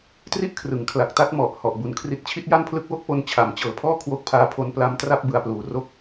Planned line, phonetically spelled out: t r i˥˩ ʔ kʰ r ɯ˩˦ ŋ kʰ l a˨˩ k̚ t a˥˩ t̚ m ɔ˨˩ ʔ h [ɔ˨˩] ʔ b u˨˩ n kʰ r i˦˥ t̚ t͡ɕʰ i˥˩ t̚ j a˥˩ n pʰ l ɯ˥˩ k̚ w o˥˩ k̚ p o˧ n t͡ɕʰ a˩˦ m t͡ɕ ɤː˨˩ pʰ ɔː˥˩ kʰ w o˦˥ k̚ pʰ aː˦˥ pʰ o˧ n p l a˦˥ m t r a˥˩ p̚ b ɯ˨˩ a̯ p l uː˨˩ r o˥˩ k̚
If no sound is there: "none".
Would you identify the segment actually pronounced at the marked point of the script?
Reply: ɔ˨˩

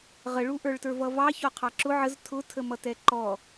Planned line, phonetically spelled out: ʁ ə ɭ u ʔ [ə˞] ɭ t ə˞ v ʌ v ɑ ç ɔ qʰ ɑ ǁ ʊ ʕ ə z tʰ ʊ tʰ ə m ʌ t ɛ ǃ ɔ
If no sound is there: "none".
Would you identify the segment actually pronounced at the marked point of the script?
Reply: ə˞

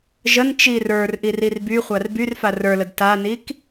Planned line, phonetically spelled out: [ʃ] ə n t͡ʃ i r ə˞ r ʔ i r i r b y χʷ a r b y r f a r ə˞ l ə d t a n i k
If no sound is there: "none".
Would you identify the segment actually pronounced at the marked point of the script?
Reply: ʒ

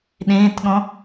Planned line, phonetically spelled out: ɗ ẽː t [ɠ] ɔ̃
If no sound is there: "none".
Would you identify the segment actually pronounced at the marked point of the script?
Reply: ɠ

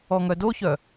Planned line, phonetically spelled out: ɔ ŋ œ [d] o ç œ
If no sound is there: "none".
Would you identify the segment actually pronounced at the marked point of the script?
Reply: d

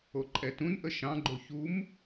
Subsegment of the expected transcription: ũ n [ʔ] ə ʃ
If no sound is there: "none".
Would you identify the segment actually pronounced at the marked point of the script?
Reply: ʔ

